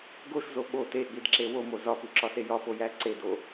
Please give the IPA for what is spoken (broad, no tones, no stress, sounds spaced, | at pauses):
ɡ o ʃ z o ɓ o t e ɠ i d ǁ e w o m o z ɒ p u ǁ ɒ s e j ɒ p o j æ ǀ e d o